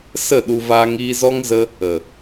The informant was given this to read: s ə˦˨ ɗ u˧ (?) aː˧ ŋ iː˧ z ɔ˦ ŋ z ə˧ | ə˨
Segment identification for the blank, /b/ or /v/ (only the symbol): v